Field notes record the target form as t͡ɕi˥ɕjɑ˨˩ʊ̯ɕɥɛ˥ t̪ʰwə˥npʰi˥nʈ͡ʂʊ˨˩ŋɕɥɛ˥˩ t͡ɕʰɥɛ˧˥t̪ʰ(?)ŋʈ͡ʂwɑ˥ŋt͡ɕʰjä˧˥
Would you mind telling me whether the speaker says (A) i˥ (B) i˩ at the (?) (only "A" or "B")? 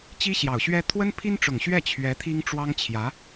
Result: A